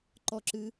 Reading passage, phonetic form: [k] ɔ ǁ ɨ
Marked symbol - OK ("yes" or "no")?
no